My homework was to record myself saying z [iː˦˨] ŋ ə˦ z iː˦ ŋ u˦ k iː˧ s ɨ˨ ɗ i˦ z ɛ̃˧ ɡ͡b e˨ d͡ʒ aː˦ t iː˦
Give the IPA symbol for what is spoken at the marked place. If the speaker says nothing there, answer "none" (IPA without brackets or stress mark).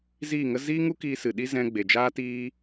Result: iː˦˨